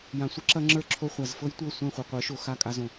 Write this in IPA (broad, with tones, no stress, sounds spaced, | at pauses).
j ã˨ sʷ ɘ˦ ǁ ɐ˧ ŋ͡ǁ ə˞˦ ǁʰ o˧ χʷ a˨ z f ɤ˦ j tʷ ɤ˦˨ sʷ ɛ̃˦˨ χʷ ɤ˨ qʷ ə˞˨˦ ʃ o˨ x a˦˨ kʼ a˧ z õ˨